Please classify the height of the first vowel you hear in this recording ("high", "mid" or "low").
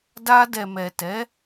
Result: low